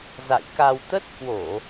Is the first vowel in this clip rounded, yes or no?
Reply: no